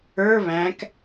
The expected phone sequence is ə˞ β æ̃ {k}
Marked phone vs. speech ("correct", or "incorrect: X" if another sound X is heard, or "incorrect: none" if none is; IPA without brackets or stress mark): correct